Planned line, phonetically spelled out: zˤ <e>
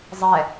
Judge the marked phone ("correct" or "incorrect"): incorrect